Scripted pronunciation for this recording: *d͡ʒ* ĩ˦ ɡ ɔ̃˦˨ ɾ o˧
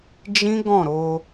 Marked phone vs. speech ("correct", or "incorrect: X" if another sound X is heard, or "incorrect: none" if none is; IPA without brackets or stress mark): correct